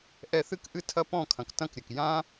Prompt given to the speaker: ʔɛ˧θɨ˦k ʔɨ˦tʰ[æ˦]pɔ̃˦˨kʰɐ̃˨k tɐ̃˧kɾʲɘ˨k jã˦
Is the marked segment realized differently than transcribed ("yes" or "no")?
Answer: yes